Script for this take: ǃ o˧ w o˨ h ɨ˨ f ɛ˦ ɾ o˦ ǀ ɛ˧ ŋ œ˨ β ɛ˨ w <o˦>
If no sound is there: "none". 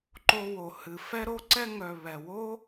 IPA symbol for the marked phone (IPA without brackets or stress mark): o˦